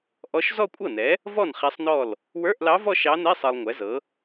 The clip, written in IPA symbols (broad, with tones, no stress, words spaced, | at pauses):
ʔɔ˧˥ʃ zɔ˥˧kʷʼɤ˥˩nɛ˩˥ | vɔ˥˩n χɛ˧˥sˤnɔ˥˩l | wə˞˧˥˧ʔlɑ˧˥ vɔ˥˧ʃ ɑ˧˥nɛ˧˥˧sˤɤ˨lˠ ŋʷɛ˩˥zɤ˩˥